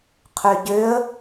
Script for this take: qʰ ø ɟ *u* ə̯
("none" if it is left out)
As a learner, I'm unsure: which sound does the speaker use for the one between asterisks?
ø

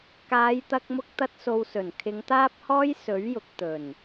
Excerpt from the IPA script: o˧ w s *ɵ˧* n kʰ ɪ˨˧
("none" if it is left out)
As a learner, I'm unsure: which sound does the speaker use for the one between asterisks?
ɵ˨˩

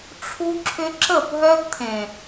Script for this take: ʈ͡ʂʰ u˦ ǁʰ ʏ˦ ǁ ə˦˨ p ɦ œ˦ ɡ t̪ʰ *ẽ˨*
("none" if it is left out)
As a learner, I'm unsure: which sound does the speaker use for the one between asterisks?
ẽ˨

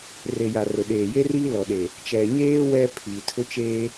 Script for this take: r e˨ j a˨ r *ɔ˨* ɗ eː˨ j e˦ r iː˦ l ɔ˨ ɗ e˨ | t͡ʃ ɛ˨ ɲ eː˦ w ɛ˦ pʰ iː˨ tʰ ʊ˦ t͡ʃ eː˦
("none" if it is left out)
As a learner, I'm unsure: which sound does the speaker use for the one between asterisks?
ʊ˨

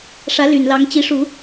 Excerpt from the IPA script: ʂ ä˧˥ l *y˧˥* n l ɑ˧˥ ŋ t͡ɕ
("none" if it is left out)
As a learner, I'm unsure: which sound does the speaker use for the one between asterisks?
y˨˩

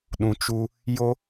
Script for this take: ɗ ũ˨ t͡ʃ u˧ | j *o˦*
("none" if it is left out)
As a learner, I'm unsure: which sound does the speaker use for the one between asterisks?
o˦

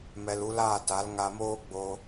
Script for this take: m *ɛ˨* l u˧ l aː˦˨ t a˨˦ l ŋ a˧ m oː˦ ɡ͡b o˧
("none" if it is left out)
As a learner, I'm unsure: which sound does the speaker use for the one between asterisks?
ɛ˨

